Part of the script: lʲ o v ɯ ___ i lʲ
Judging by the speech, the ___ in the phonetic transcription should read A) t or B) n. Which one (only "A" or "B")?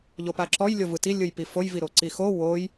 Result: A